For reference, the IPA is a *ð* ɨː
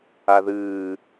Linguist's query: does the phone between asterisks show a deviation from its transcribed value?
no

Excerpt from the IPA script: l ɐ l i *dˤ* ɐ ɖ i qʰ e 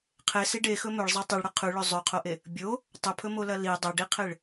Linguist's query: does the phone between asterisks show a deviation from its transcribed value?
no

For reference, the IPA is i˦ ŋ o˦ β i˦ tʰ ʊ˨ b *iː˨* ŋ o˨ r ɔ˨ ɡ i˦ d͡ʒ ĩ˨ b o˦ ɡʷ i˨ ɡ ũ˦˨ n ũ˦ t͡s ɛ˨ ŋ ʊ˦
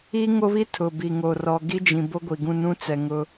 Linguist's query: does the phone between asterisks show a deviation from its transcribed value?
yes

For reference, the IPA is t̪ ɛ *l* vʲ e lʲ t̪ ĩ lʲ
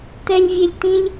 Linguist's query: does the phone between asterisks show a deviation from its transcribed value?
yes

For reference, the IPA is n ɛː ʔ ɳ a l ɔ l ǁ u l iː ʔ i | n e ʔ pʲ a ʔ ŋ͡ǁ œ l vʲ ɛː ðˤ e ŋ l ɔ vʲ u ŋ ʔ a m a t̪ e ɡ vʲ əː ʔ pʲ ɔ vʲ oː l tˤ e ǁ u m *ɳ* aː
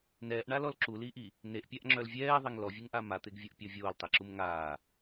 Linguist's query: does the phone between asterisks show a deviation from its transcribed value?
yes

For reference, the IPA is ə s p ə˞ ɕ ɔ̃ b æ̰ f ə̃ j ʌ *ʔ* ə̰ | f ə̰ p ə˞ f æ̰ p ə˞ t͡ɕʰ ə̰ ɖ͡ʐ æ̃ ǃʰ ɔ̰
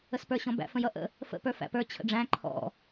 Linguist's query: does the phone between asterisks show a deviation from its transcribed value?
no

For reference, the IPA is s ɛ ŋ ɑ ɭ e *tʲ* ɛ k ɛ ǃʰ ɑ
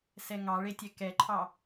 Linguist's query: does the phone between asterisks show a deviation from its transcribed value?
no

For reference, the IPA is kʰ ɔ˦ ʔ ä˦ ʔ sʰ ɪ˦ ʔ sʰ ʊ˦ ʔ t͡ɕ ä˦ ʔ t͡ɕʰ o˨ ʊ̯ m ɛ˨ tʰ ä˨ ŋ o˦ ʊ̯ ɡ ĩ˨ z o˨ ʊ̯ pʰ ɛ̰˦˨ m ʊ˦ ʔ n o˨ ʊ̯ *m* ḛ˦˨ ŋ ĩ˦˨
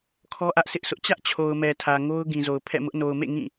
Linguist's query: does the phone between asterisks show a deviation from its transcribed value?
no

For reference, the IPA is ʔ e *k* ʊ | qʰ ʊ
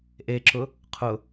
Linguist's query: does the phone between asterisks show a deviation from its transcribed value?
yes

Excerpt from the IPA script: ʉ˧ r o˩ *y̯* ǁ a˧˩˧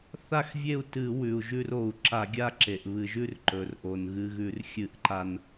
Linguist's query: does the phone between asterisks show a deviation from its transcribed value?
yes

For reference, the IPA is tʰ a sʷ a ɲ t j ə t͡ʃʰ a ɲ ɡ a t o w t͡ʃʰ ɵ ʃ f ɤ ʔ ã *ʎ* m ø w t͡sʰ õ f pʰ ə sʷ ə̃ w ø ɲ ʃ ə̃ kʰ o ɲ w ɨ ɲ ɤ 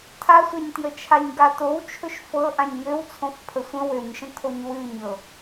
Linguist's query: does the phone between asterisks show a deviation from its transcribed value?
yes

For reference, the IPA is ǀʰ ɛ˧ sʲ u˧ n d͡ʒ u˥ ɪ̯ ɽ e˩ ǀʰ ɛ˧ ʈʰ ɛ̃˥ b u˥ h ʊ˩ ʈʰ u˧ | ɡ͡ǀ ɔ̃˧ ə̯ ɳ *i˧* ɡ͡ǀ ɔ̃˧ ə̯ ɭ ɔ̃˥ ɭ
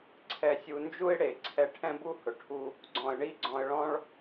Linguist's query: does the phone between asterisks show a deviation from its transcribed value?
yes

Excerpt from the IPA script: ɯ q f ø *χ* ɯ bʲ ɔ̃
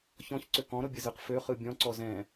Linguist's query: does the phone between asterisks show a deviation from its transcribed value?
no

